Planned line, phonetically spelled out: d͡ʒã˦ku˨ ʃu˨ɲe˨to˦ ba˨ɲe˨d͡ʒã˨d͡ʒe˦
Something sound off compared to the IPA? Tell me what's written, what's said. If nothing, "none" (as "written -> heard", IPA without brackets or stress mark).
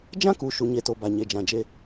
o˦ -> o˨